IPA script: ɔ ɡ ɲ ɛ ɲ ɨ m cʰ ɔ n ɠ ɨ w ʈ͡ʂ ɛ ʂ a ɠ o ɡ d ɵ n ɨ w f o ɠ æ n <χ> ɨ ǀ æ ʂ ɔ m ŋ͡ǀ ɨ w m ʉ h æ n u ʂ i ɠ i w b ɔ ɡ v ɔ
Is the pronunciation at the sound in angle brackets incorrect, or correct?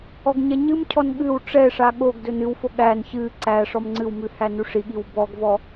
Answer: incorrect